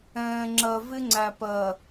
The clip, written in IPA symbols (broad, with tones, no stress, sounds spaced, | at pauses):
ɛ̃ː˨ ŋ͡ǁ ɜ˨ v ɪ˦ ŋ͡ǀ æ˨ p ɜ˨